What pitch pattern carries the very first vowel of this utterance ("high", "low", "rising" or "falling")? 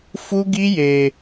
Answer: high